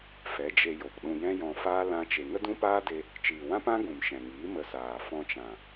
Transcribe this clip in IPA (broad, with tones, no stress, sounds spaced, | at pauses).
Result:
f ɛ˨˦ d͡ʒ e˧ j o˨ p ɗ ũ˧ j ɛ̃˦ j ɔ̃˧ f aː˦ l ã˦ t͡ʃ e˧ ŋ ə˦ d ũ˦ p aː˦ d e˧ | t͡ʃ iː˨ w ã˦ p ã˦ ɡ ũ˨ m ʃ ɛ̃˨ ŋ iː˨˦ m ə˧ s aː˨ f ɔ̃˧ t͡ʃ ã˨